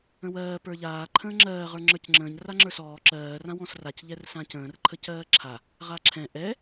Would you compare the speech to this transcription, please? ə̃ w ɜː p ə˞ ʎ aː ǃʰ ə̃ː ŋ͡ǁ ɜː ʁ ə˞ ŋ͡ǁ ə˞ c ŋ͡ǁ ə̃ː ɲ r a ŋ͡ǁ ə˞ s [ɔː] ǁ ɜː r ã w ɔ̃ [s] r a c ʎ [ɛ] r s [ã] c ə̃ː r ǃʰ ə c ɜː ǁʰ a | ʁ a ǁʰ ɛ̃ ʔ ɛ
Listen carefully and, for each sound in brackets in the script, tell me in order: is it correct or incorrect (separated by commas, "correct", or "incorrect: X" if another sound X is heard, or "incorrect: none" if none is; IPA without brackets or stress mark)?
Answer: correct, correct, correct, correct